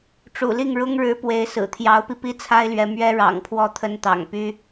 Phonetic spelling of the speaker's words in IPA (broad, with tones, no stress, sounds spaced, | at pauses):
ʈ͡ʂ ṵ˨˩ l i˥˩ ŋ ɻ ʊ˥ ŋ ɻ ɻ̩˧˥ p w e˧˥ ɪ̯ s ɹ̩˨˩ t̪ʰ j ɑ˧˥ ʊ̯ p i˧ p i˥ t͡sʰ a˥ ɪ̯ l ɥ ɛ˧˥ m ɥ ɛ˥ ɻ ɑ̰˨˩ ŋ pʰ w ɔ˥˩ t̪ʰ ə˥ n t̪ ɑ̰˨˩ ŋ p y˥